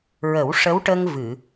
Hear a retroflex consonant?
yes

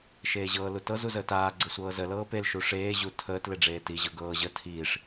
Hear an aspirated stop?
yes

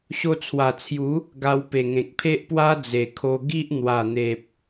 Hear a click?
no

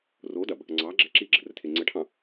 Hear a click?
yes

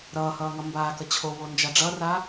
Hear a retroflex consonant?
yes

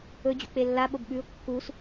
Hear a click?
no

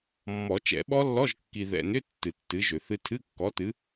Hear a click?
no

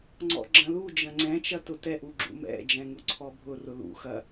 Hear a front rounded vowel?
no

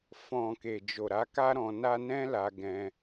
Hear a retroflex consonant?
no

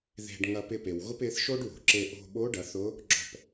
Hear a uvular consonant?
no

